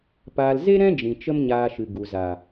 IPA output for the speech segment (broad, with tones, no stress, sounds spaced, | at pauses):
p aː˧ l z e˦ ɾ ɛ̃˦ d͡ʒ ĩ˨ t͡ʃ ə˦ m ɲ aː˧ ʃ ɨ˨ ɡ u˨ z a˨